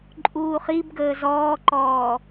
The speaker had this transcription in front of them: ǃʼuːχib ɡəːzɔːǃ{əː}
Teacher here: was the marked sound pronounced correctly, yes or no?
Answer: no